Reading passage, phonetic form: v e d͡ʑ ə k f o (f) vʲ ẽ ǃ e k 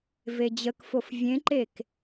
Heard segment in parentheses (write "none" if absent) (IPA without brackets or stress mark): f